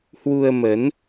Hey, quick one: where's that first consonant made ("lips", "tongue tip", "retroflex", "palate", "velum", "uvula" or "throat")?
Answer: throat